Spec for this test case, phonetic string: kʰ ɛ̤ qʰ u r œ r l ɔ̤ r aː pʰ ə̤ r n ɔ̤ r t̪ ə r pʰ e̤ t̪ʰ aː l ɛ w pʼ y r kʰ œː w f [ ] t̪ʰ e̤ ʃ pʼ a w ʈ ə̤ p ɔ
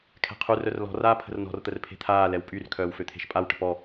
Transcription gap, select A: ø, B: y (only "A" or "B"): A